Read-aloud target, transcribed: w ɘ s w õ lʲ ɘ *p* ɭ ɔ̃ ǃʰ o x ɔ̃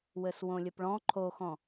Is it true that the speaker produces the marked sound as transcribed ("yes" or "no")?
yes